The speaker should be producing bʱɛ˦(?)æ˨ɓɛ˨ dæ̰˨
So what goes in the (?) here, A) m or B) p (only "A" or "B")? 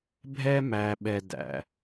A